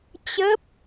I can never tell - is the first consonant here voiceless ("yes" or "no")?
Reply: yes